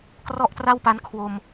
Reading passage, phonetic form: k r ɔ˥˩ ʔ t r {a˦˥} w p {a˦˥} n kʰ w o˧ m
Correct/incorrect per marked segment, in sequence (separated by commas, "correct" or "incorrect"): incorrect, correct